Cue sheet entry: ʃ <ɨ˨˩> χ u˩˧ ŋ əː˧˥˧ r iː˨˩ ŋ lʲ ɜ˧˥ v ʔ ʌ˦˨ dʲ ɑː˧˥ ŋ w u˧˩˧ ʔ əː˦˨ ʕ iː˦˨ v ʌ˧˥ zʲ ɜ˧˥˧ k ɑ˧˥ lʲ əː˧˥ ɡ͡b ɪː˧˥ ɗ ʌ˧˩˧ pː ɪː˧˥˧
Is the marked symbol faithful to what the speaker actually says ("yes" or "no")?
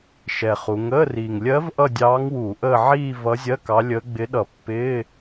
no